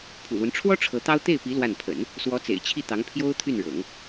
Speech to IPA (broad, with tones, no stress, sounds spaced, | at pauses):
pʰ ṵ˨˩ l w ə˦ n ʈ͡ʂʰ w ɔ˥ ʈ͡ʂʰ ɤ˧˥ t̪ ɑ˥ ʊ̯ t̪ e˥˩ ɪ̯ p i˧˥ l w a˥˩ n pʰ ə̰˨˩˦ n | s w ɔ˧˥ t͡s ḛ˨˩ ɪ̯ t͡ɕʰ i˥˩ t̪ ɑ˧˥ ŋ pʰ j o˥ ʊ̯ t̪ʰ y˥˩ n ɻ ɤ̰˨˩˦ ŋ